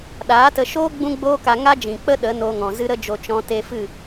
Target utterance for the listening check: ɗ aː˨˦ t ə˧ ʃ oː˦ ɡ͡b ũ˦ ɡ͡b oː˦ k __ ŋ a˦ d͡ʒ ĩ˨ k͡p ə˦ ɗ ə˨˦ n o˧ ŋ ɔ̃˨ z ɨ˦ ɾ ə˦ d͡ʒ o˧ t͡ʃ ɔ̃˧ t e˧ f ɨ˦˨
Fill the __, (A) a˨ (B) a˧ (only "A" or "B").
B